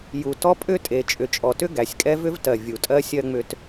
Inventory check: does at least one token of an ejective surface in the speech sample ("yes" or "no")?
yes